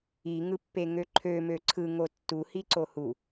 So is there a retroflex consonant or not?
no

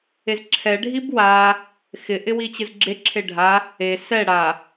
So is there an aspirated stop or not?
yes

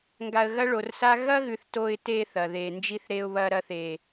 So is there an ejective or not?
no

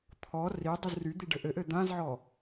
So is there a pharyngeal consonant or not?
yes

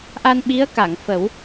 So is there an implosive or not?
yes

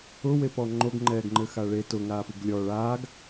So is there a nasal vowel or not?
no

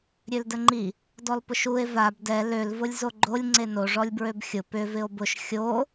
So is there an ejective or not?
no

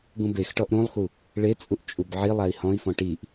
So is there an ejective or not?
yes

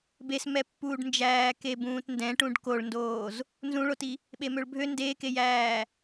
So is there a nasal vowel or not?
yes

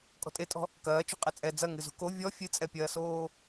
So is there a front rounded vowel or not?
no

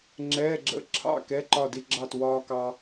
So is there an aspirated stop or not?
yes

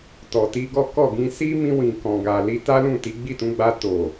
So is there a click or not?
no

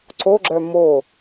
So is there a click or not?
yes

